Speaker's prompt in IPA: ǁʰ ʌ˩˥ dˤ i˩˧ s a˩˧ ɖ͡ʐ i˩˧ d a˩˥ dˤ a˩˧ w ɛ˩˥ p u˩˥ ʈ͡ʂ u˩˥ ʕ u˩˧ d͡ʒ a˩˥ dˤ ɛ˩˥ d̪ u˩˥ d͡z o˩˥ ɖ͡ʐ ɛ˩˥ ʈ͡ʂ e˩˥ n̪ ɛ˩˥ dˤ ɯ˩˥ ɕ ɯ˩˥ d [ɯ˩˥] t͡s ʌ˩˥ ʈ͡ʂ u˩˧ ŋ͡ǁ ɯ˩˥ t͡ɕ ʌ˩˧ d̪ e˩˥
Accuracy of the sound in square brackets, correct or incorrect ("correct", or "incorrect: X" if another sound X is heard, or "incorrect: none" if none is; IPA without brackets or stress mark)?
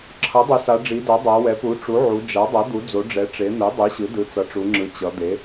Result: correct